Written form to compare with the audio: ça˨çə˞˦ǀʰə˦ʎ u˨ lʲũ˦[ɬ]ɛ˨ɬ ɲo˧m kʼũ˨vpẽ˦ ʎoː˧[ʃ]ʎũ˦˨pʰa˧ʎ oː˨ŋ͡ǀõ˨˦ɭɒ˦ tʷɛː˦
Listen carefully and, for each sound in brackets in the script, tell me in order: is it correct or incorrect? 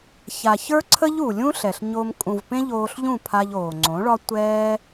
correct, incorrect

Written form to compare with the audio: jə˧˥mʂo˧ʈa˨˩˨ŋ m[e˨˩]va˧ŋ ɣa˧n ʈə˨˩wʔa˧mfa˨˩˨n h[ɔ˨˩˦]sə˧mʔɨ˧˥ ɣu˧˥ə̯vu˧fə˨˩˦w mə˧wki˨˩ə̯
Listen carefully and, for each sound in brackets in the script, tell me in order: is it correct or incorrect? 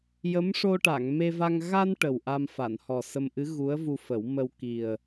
incorrect, incorrect

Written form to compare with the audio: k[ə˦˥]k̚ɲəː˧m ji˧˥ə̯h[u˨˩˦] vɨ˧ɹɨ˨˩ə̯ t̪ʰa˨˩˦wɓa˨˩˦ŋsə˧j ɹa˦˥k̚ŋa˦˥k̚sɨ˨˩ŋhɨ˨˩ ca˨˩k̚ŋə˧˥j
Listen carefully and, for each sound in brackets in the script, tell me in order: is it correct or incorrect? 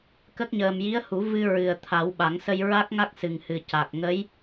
correct, correct

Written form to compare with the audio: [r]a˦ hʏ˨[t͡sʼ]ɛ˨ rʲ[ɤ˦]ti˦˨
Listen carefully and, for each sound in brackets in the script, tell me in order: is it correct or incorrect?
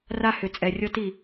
correct, correct, correct

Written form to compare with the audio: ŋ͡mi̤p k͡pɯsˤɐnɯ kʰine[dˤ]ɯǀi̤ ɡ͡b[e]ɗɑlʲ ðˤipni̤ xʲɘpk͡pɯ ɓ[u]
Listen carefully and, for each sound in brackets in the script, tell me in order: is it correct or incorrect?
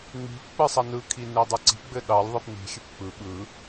correct, incorrect, incorrect

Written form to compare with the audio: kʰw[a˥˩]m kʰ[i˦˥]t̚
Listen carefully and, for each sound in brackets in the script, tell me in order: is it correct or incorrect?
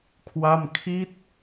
correct, correct

